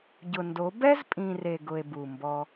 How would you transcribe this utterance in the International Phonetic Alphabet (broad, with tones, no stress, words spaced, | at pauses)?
ɟʊ˨ndo˨˦ bɛ˦zpʼĩ˨ re˨ɡʊ˨e̯ bu˨mbɔ˧